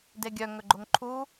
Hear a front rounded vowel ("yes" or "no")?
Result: yes